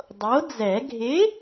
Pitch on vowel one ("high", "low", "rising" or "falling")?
rising